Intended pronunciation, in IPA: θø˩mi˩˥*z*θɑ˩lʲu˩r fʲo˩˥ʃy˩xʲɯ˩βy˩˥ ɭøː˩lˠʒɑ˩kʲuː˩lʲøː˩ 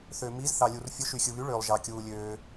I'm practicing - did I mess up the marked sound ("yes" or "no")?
no